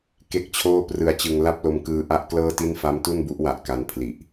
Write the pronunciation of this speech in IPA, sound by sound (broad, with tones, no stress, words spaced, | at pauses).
ke˥˩k̚t͡ɕʰoː˥˩prɯ˧a̯t͡ɕɯ˧ŋ la˥˩p̚lo˧mkɯː˧ ʔa˥˩ʔklɤː˥˩ti˥˩n fa˦˥mtu˥˩nbu˦˥ʔwa˨˩ʔ ka˧npʰli˨˩ʔ